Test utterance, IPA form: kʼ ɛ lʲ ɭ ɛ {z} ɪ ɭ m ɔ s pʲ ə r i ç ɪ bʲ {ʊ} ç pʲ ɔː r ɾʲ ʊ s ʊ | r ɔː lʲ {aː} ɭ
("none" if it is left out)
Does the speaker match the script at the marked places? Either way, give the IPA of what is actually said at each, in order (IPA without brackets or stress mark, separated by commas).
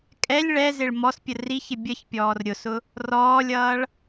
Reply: z, ə, ʌː